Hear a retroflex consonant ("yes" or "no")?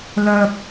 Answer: no